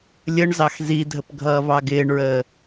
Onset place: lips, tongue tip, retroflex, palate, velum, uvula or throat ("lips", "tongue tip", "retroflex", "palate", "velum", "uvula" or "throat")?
tongue tip